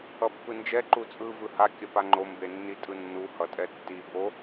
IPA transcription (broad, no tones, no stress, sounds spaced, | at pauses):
ʌ pː ɯ n d͡ʒ ɛ ǃ u t͡sʼ ɯ v ɯ h a kʲ ʌ p a ŋ͡ǃ o m b e nː i tʼ ɯ nː u h ʌ tʼ ɛ tː i b o